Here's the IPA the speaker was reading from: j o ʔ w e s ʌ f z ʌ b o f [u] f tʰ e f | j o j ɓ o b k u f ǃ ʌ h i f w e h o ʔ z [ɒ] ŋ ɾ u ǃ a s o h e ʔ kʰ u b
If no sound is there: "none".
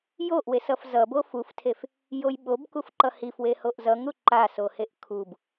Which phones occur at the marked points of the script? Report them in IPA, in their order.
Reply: u, ʌ

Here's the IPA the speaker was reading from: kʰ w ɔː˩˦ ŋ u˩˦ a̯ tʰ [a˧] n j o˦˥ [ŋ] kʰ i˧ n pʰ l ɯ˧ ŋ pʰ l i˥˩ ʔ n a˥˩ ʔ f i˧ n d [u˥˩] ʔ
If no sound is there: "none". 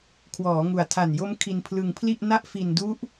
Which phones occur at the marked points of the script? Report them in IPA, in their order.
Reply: a˨˩, m, u˦˥

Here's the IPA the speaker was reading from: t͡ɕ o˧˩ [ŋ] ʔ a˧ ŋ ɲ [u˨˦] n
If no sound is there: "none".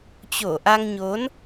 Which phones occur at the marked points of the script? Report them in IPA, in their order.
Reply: none, o˨˦

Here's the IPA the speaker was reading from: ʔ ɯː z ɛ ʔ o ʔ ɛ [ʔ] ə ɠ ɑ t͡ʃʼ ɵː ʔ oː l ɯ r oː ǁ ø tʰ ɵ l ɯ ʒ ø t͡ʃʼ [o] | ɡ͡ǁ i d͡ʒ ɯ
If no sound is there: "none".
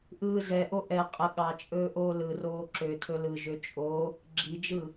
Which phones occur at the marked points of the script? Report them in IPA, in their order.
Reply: qʼ, o

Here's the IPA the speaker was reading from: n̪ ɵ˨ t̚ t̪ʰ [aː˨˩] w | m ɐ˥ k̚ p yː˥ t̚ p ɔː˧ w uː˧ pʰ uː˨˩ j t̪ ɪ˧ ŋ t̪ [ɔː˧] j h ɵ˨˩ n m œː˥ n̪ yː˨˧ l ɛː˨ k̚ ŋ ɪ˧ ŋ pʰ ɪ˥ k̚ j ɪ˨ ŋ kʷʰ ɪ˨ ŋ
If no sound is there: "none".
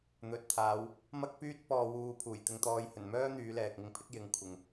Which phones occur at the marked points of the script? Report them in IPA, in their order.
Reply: aː˨˧, ɔː˧

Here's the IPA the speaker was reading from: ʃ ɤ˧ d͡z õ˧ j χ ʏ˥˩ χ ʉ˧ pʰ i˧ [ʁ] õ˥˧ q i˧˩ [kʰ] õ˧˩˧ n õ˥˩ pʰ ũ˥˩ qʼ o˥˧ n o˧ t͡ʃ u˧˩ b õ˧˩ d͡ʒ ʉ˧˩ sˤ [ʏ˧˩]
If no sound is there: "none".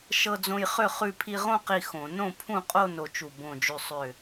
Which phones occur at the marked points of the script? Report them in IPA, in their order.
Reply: ʁ, x, ʏ˧˩

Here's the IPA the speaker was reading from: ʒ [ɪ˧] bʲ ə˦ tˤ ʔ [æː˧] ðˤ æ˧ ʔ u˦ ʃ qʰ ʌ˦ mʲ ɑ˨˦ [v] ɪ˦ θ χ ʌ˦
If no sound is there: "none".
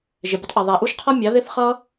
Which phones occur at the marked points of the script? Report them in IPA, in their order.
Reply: ɪ˧, æ˧, ð

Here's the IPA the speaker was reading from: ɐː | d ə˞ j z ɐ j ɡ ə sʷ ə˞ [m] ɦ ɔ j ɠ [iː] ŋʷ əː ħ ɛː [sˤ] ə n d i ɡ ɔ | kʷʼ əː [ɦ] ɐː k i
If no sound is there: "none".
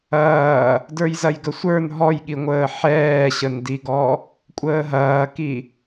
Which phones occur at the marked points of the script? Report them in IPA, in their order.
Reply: n, i, ɕ, ɦ

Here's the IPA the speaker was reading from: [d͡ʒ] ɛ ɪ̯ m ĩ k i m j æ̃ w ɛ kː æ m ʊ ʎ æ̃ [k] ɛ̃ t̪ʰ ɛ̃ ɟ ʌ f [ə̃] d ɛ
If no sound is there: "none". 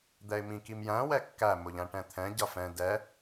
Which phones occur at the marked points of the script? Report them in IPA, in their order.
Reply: d̪, ʈ, ɛ̃

